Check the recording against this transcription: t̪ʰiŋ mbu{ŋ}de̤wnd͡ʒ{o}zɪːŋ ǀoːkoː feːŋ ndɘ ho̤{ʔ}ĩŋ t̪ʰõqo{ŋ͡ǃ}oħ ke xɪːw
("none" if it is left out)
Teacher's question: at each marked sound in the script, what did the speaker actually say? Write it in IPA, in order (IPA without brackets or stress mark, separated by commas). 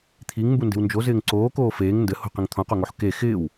n, o, q, ŋ